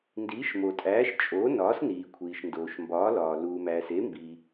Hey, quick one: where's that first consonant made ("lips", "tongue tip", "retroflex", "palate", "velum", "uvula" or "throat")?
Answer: tongue tip